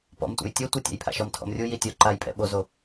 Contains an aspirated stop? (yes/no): yes